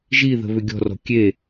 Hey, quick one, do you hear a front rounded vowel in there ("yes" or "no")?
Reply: yes